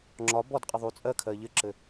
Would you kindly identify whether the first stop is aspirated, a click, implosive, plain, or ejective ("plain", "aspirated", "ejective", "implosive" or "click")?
click